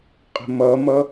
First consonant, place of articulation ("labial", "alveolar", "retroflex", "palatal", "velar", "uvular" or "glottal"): uvular